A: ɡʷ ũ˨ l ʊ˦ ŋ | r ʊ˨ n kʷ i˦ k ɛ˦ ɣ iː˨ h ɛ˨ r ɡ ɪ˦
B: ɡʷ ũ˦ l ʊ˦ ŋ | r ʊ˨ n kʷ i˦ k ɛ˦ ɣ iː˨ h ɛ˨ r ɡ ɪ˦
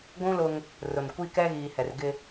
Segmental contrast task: B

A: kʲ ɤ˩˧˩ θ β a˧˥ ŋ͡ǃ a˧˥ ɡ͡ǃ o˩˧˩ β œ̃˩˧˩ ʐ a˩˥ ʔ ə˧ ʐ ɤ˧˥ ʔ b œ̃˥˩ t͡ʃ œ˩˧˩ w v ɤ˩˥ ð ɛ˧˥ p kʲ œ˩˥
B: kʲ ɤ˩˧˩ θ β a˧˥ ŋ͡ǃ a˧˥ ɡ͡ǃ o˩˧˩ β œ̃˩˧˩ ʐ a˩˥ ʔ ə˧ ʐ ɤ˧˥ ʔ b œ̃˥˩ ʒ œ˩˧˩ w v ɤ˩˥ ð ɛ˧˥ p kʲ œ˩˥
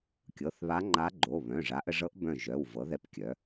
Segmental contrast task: B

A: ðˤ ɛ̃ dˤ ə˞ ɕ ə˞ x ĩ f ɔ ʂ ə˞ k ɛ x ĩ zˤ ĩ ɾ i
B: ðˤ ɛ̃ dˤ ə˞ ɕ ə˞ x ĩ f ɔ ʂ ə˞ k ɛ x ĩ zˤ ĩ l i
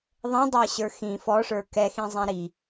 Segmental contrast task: A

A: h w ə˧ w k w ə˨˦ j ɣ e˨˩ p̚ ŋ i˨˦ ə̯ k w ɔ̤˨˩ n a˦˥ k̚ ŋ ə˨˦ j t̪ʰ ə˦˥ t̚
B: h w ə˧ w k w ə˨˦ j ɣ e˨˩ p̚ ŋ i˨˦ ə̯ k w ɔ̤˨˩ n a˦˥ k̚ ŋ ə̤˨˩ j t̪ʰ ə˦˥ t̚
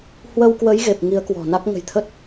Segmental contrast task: B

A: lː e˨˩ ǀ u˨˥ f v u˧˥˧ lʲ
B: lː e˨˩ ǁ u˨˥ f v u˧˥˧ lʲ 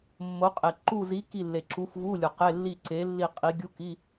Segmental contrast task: B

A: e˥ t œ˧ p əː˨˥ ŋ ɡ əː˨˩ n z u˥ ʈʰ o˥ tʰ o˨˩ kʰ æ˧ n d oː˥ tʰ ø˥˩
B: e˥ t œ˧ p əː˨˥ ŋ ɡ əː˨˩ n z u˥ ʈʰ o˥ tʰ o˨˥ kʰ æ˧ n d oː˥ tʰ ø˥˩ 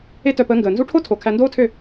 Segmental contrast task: A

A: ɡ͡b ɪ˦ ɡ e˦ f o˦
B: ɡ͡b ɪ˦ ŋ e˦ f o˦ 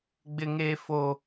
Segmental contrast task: B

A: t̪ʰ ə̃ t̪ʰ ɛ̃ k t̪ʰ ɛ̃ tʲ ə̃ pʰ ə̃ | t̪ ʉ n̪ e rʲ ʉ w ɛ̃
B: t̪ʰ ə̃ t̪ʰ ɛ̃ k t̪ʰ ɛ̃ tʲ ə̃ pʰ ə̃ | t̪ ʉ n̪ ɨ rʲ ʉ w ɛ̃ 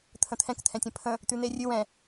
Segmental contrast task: A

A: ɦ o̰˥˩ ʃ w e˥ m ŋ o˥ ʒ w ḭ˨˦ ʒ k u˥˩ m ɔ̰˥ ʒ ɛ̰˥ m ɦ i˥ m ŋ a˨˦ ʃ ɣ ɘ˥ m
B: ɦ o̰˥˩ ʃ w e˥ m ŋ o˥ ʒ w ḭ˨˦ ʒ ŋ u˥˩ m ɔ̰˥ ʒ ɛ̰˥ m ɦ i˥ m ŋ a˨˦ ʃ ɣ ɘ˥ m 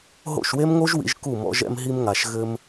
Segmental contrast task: A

